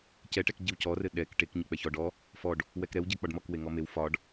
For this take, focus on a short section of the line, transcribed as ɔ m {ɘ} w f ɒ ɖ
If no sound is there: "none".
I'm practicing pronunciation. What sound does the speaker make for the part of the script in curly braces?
e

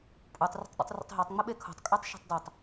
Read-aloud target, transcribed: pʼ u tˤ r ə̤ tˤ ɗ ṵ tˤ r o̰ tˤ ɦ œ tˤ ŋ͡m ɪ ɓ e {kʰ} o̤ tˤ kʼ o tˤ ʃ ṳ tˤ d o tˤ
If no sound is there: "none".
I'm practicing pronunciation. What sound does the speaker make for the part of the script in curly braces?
kʰ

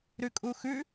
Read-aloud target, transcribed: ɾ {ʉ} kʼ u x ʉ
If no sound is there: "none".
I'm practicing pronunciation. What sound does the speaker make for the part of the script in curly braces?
ʉ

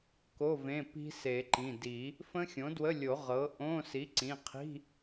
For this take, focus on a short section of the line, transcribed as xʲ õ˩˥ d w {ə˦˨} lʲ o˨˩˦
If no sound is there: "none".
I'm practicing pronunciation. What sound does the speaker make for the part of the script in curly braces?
ə˧˥˧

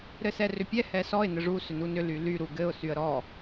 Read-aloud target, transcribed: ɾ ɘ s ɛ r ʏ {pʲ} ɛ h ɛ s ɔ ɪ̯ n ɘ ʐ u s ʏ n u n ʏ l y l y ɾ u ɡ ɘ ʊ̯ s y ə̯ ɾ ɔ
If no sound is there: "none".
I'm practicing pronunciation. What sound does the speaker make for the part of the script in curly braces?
pʲ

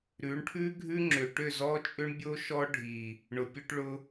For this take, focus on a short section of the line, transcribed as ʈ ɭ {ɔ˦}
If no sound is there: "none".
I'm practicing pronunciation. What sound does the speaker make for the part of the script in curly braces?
ʊ˦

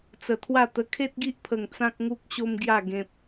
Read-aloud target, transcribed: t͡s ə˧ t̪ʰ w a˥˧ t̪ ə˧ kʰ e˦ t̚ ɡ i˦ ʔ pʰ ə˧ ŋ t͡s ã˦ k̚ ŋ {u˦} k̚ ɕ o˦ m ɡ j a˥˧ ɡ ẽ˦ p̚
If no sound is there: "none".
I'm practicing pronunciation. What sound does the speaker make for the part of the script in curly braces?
u˦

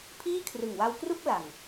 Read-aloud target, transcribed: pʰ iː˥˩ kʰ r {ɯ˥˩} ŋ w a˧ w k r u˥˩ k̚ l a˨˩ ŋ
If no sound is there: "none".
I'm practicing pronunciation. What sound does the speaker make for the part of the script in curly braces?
ɯ˨˩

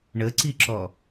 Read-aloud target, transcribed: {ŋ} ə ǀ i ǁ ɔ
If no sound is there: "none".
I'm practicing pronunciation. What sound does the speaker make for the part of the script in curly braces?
ɳ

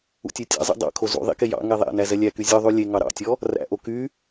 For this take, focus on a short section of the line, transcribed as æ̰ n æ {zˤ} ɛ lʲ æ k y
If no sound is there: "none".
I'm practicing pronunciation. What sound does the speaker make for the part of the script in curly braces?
z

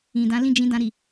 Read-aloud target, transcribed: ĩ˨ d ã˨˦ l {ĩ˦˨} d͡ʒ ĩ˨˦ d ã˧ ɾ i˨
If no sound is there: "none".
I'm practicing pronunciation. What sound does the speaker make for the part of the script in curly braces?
ĩ˦˨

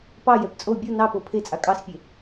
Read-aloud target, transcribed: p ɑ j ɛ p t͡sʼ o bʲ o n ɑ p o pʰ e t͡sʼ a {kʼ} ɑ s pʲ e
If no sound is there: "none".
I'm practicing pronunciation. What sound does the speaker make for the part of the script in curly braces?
kʼ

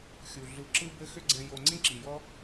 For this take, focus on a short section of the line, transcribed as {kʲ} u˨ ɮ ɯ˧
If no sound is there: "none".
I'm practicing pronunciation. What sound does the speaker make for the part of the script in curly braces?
xʲ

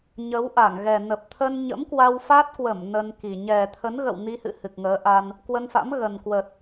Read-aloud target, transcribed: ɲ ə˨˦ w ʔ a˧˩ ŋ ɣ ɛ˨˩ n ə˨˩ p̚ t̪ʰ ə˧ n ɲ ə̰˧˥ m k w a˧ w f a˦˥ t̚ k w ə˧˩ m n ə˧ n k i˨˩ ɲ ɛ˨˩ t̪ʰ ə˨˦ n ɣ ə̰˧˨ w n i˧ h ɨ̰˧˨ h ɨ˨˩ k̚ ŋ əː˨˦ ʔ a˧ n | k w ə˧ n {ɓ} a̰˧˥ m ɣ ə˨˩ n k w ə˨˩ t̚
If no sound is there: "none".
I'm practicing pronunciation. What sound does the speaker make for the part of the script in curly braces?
f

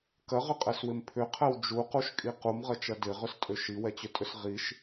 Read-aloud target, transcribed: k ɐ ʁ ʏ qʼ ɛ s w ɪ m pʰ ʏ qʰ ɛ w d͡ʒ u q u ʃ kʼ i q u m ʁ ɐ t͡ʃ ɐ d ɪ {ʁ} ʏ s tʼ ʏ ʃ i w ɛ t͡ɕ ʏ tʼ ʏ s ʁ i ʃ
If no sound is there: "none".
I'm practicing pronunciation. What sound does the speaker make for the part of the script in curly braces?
ʁ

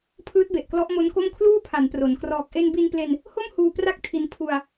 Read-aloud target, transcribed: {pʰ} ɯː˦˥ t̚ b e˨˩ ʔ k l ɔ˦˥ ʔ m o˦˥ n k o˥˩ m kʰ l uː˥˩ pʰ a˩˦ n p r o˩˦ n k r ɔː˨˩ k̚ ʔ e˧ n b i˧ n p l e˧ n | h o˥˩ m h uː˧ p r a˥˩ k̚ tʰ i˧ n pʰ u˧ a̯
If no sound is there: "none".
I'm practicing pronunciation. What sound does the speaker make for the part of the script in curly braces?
pʰ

